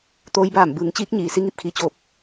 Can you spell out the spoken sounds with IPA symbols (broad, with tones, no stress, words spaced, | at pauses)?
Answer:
t̪oː˧˥jbaː˧˩mbɯː˩˧ŋ t͡ɕiː˧˥k̚ɲiː˩ si˧ŋi˥˨p̚kʰi˩t͡ɕoː˧˩p̚